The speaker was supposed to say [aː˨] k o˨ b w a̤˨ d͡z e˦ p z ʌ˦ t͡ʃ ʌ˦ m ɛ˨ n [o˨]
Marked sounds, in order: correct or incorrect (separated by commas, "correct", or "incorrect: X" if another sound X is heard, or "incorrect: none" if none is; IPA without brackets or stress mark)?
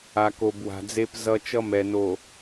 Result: incorrect: a˨, correct